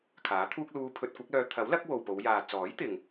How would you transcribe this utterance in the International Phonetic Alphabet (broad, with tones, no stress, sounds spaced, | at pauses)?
kʰ aː˨˥ t̪ʰ uː˥ k̚ l uː˧ pʰ ɵ˧ t̚ kʷ ɐ˨˥ k̚ l œː˧ t̪ʰ ɐ˨˥ w l ɐ˨˥ k̚ w o˨ w p o˨˧ w j aː˨ t͡s ɔː˨˥ j t̪ ɪ˨ ŋ